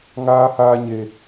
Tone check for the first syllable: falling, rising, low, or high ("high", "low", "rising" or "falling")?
high